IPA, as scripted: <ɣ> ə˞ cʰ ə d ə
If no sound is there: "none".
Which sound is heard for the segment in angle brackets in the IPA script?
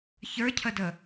ç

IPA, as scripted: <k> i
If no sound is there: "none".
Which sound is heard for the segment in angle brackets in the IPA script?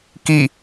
k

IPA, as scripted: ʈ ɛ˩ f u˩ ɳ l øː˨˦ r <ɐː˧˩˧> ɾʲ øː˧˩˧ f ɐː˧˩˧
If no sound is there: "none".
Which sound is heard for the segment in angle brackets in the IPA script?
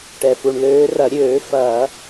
ɐ˧˩˧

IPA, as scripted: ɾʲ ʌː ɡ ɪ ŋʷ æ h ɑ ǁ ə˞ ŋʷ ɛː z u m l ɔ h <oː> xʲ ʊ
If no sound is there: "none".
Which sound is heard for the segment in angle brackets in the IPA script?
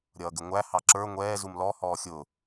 ɔː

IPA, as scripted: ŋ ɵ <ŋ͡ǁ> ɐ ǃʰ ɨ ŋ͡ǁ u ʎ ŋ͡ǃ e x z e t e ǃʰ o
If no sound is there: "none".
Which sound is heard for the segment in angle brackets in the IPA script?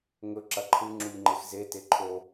ǁ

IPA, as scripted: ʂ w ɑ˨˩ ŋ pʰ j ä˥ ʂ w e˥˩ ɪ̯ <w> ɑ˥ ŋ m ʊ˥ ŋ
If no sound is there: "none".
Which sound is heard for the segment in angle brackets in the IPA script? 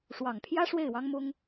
w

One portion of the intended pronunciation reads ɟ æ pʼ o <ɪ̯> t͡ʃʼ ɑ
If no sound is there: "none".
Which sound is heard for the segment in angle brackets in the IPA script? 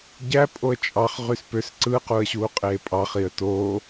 ə̯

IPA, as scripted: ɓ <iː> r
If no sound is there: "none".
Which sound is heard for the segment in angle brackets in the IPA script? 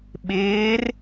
ɪː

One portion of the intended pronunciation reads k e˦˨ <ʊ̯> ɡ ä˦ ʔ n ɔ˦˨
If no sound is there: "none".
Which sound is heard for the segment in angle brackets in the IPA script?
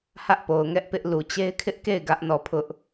ɪ̯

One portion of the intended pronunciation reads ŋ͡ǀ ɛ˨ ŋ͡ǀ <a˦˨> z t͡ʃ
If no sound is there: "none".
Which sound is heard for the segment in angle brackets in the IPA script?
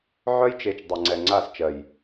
a˦˨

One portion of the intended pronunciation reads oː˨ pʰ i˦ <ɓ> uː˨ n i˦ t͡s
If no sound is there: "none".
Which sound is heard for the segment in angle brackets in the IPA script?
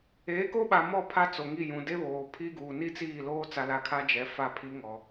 ɡ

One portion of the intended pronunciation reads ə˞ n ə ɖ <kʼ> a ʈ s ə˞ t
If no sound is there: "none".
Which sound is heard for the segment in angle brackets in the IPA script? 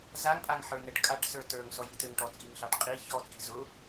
kʼ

